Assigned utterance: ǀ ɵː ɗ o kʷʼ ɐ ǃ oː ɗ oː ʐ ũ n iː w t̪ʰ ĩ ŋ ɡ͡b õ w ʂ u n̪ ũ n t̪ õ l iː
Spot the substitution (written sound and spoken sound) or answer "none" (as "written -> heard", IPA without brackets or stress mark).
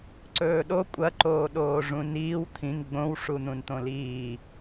none